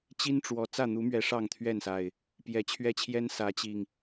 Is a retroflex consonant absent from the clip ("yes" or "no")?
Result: no